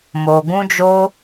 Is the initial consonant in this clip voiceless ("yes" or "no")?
no